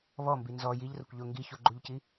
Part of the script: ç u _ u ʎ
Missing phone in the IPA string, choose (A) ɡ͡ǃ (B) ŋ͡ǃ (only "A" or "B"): A